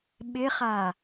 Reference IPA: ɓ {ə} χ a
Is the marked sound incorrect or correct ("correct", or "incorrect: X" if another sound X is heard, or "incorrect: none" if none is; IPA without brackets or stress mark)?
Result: incorrect: ɪ